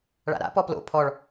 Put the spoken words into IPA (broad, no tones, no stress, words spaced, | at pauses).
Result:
ɭa̰ɾa̰ pɔplo̰ pʰɔɭ